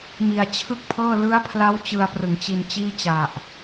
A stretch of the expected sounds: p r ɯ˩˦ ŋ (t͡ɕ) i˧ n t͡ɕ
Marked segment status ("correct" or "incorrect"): correct